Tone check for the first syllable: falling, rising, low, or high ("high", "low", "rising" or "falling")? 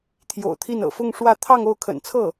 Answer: low